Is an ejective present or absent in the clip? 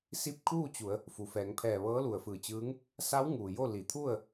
absent